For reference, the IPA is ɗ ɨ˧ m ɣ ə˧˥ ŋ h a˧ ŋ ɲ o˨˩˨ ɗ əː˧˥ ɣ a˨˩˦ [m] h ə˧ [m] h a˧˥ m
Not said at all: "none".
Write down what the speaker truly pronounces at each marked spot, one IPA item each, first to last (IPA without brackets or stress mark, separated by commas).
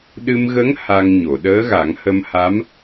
ŋ, m